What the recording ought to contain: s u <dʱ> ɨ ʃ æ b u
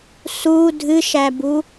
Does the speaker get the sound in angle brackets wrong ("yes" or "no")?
no